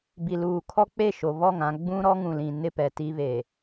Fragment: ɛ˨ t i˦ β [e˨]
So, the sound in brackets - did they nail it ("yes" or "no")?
yes